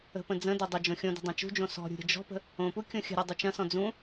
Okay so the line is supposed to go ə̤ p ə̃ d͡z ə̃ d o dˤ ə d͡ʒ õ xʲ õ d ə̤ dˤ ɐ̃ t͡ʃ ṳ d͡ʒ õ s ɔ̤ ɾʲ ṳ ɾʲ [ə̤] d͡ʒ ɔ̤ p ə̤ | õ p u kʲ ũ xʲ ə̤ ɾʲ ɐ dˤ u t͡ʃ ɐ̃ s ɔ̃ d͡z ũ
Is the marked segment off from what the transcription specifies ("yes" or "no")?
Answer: no